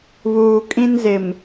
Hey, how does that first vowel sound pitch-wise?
low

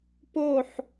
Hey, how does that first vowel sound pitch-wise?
falling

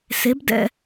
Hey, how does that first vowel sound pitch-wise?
rising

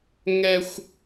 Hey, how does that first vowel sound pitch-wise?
high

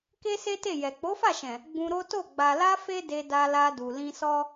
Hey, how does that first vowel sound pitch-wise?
high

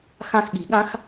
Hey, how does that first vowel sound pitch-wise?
falling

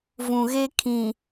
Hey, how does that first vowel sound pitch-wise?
low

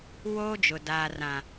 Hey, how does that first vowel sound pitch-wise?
high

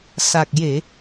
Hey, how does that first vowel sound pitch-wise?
low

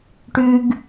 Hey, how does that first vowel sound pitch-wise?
high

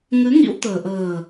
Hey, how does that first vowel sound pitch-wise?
rising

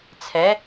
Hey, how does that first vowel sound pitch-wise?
rising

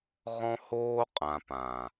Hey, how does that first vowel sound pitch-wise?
high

